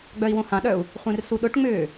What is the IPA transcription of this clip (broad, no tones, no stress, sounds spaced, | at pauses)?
ɡ͡b œ i̯ w õ h ã ɗ œ u̯ | χʷ ẽ r s u ɗ ʊ ʈ ŋ͡m ʏː